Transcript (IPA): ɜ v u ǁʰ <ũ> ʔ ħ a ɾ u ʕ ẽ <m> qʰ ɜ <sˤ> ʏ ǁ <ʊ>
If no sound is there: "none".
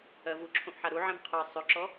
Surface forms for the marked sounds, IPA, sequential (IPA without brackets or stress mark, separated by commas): õ, m, sˤ, ɔ